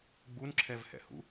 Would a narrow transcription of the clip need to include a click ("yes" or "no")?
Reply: yes